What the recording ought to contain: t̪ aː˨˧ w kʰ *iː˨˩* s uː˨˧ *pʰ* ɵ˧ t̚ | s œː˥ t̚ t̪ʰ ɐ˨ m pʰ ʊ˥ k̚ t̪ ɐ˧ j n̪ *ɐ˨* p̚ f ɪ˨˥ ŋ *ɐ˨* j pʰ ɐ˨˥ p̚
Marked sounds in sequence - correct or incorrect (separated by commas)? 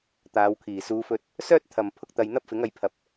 correct, incorrect, incorrect, incorrect